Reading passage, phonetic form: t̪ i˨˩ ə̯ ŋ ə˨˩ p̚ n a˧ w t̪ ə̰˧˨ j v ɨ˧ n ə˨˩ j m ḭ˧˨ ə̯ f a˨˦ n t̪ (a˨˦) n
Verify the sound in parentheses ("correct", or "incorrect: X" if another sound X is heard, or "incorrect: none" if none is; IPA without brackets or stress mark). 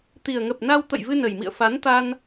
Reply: incorrect: a˧